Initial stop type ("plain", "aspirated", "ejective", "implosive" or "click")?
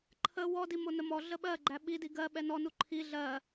click